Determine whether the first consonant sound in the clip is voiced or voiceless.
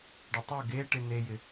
voiced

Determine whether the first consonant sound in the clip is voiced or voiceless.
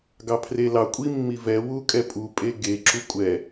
voiced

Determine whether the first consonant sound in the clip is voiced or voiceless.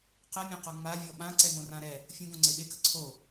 voiceless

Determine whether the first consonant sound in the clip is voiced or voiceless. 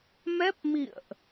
voiced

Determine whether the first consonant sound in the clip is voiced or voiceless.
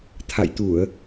voiceless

